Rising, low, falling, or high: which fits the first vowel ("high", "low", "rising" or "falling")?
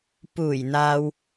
low